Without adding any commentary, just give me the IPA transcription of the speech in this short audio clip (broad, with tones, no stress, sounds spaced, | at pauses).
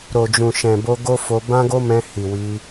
ɾ o˨ d͡ʒ ũ˨ ʃ ɛ̃˨ b o˧ ɡ o˦ f o˧ b ã˦ ɡ o˦ m ɛ̃˧ h i˨ w i˧